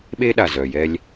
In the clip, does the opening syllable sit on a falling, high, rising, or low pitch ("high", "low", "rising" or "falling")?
high